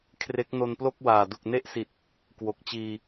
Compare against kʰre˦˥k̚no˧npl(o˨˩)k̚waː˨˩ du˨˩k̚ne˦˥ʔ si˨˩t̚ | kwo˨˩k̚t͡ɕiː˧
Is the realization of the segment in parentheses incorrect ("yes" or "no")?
yes